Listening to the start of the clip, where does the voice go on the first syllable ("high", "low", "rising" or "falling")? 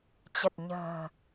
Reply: low